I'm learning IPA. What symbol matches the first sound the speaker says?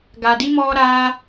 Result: ɡ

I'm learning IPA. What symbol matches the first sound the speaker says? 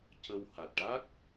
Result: c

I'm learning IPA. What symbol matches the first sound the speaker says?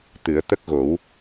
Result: t̪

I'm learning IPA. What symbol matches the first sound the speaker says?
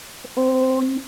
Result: ʔ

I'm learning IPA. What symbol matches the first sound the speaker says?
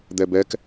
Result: d̪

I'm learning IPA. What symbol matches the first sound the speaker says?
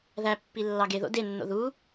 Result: ð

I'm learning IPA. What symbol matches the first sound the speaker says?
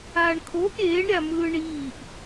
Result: aː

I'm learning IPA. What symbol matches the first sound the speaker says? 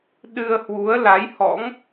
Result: ɗ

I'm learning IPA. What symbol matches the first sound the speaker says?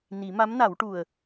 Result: n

